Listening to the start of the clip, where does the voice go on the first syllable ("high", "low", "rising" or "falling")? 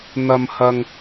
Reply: low